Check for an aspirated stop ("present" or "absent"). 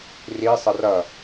absent